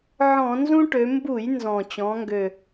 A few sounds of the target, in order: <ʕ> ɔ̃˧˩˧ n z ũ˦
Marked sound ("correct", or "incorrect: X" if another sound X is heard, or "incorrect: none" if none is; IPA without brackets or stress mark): correct